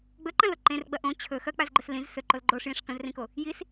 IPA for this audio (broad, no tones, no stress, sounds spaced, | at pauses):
ɡ͡b ɵ ǃ ɐ̃ l o ǃ ẽ r ɡ͡b ɐ ʔ õ t͡ɕʰ ɵ x ɐ k͡p a z ɡ͡ǃ ɵ s l ĩ z s ɵ ǃ o l ɡ͡ǃ o ʂ j ĩ ʂ k ɐ̃ z r ĩ k o | j i s